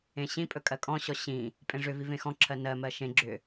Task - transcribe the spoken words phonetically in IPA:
ẽ ɕ ĩ pʼ ɵ kʼ ɜ kʼ ɔ̃ ɕ ɔ ɕ ĩ | pʼ ẽ ʐ ʏ v i v ẽ x ɔ̃ ǁʰ ɜ n ɜ m ɜ ʃ ẽ ɡ͡ǁ ʏ

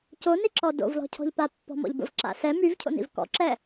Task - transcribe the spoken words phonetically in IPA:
c o n i ǁ ɔ d o̰ v l ɔ̤ cʰ ɔ̤ ʎ p a pː ɔ̤ m ɔ̰ ʎ b ə̰ v ǁ a̰ s ɛ m y v cʰ o̰ n ḭ v k ɔ̰ ǁ ɛ

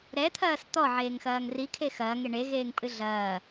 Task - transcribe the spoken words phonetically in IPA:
ɾ ɛ t̪ʰ ɐː s t̪ ɔ ʕ eː ŋ x ɐː ŋ r i kʰ e x ɐː ŋ e ɳ e ɣ eː ŋ pʼ ɨ ɮ ɐː

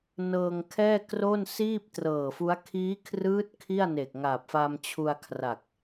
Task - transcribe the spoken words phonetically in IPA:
n ɤː˧ ŋ kʰ ɛː˥˩ k r o˥˩ n s iː˥˩ p̚ t r ɤː˨˩ f u˦˥ a̯ kʰ iː˦˥ kʰ r ɯː˦˥ t̚ kʰ i˥˩ a̯ n e˨˩ k̚ ŋ aː˨˩ p̚ f a˧ m t͡ɕʰ u˧ a̯ kʰ r a˨˩ k̚

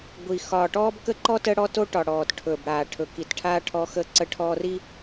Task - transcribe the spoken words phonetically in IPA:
ɡʷ i˨ x ɒː˨ ʈ ɔː˦ b k ə˦ ǃ ɔ˦ t ə˦ ɽ ɔ˦ t o˦ ʈ ɒ˨ ɽ ɔː˨ t ʈʰ ɵ˨ b ɽ aː˨ ʈʰ ɵ˨ k i˨ t ʈʰ aː˦ ʈʰ ɔ˦ x ə˦ ǀ ə˦ ʈʰ ɔː˦ r i˦

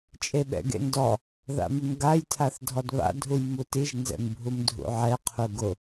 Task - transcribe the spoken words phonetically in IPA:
t͡ʃʼ e ɓ ɛ̰ ɡ ḛ n d ɔ | ð a̰ m ɪ m ɡ a j tʰ a θ dʱ ɔ d β a̰ dʱ u j m u t i ʒ n z ɛ̰ m bʱ u m dʱ ṵ ʕ ɛ qʰ u ɡ ʊ

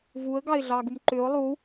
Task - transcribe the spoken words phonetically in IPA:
v u ə̯ ɡ ɑ ɪ̯ ɮ ɑ ɡ u m ǃ ʏ ʊ̯ lˠ u

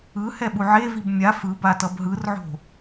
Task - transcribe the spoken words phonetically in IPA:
ɯ h ɛ ɓ u ʕ e v i b mʲ a f ɯ b a t ʌ b ɦ ɯ r ʕ o̤

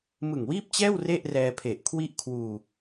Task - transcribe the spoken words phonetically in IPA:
m ɯ˨˩ ŋ w iː˥˩ p̚ t͡ɕ ɛː˥˩ w r e˥˩ ʔ r ɛː˧ pʰ e˨˩ ʔ kʰ w i˥˩ ʔ kʰ w uː˧

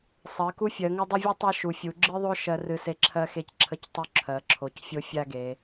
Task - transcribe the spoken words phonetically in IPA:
sˤ ɜ˩˧ k u˦ fʲ ɜ˩˧ ŋ u˦ dˤ ə˦ vʲ u˦ tˤ ɜ˦ ʃ u˩˧ fʲ u˩˧ ɡ͡ǁ ɨ˦ ðˤ o˦ ʃ ɜ˦ r ɨ˦ s e˦ ǁʰ ɜ˦ x e˦ c ǁʰ ə˦ c tˤ u˦ ǁʰ ɜ˩˧ ǁʰ o˩˧ c fʲ o˦ fʲ a˦ ɡ e˩˧

